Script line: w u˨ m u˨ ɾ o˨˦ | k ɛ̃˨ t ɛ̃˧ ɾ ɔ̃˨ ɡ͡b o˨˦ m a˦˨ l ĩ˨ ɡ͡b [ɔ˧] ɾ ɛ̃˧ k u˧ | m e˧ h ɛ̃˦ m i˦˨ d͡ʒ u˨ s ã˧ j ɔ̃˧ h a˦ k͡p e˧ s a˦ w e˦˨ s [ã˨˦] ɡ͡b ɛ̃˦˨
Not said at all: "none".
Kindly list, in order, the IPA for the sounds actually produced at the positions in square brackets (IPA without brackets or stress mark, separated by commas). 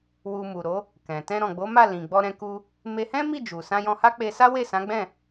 ɔ˧, ã˨˦